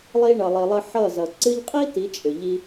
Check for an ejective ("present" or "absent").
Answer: present